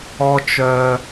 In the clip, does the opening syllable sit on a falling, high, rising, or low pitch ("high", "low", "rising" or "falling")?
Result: high